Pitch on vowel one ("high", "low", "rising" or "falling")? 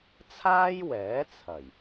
high